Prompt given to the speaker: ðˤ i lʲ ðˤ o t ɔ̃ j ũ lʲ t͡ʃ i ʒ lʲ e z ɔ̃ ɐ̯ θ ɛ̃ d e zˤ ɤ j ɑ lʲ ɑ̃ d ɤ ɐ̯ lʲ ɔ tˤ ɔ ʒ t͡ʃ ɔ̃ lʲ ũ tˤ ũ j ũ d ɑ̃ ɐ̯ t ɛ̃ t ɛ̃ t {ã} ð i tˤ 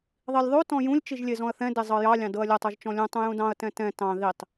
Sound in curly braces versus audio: incorrect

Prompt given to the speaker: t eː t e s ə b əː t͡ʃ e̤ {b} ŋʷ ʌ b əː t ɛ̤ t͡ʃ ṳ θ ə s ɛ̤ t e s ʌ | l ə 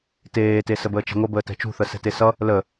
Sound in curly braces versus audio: incorrect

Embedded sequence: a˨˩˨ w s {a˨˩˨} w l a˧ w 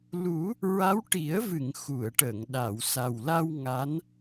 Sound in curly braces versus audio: incorrect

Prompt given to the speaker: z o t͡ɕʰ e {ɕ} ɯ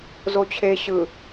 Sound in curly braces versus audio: correct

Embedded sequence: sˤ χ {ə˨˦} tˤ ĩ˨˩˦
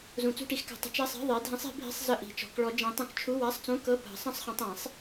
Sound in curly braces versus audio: incorrect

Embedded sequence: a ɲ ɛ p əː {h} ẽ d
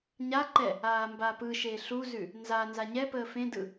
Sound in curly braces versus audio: incorrect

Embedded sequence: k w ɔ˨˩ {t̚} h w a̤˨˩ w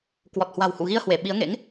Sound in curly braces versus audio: correct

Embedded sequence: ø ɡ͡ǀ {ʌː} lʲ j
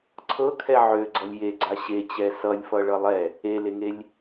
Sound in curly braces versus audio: incorrect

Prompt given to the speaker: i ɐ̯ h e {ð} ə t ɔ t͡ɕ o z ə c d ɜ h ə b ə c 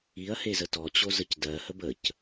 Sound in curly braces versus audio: incorrect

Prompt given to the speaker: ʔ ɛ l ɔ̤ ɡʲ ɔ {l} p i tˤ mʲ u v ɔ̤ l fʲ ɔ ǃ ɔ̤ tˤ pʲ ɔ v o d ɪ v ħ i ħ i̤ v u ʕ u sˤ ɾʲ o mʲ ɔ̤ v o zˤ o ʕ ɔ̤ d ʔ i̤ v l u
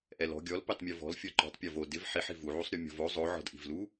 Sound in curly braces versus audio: correct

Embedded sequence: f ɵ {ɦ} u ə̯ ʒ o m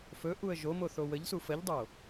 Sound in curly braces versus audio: incorrect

